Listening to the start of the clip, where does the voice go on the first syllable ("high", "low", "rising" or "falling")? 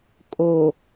low